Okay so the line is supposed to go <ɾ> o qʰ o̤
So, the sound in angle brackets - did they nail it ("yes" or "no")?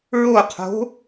no